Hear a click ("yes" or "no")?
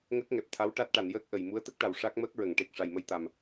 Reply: no